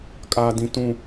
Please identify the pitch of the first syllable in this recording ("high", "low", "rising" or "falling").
low